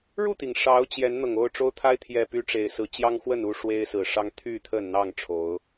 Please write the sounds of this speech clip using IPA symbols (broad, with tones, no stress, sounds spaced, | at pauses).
ɻ u˥˨ t̪ i˩ ŋ ʂ ɑ˨˦ ʊ̯ t͡ɕ j ɛ˨˦ n n̪ ɤ˨˩ ŋ o˥˨ ʊ̯ ʈ͡ʂ o˦ ʊ̯ t̪ʰ a˦ ɪ̯ t̪ʰ j ɛ˨˩ p y˨˦ ʈ͡ʂ e˨˩ ɪ̯ s ɹ̩˨˦ t͡ɕ j ɑ˦ ŋ x w ə˥˨ n u˥˨ ʂ w e˦ ɪ̯ s ɹ̩˨˩ ʂ ɑ˦ ŋ t̪ʰ y˥˨ t̪ʰ ə˥˨ n n̪ ɑ˥˨ ŋ ʈ͡ʂʰ o˨˦ ʊ̯